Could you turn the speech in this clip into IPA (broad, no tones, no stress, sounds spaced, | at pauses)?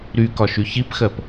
ɾ y k ɒ ʃ y ç i p x ɜ p